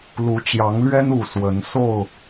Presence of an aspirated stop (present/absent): absent